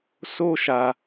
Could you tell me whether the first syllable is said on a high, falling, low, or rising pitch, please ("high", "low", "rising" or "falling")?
high